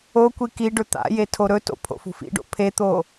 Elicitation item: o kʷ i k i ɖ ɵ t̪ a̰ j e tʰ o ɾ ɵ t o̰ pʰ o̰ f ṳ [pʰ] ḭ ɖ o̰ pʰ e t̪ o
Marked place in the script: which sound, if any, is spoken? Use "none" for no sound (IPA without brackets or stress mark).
f